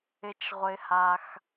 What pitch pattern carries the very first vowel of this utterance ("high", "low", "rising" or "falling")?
high